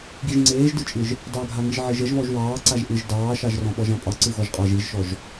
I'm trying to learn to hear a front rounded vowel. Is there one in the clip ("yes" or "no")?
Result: no